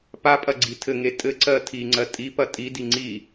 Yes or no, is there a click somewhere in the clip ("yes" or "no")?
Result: yes